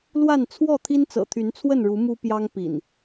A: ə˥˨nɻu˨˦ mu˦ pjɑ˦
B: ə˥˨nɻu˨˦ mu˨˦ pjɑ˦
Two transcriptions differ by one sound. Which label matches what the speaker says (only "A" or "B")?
A